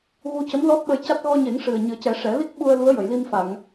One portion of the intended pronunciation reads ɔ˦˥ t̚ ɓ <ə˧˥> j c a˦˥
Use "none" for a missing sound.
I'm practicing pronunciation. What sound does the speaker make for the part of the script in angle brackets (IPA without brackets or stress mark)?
ə˧